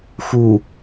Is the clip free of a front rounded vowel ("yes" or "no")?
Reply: yes